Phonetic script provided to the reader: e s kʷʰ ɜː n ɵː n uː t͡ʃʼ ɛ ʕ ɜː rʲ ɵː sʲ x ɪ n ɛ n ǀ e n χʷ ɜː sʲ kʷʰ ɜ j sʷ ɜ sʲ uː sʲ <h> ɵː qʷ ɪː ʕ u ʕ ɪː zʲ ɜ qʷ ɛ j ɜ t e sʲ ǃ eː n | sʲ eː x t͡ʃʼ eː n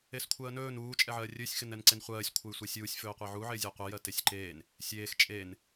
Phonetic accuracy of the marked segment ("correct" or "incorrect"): incorrect